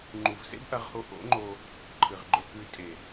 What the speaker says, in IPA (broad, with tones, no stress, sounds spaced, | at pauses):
ŋ͡ǃ u˨ v s ḛ˦ b ʔ ɐ˧ ʁ h o˧ ʔ o̰˨˦ ŋ͡ǃ o˧ | ǃʰ ɨ˨ ʁ ɡ͡ǃ ɵ˧ k ʉ˧ tʼ e˨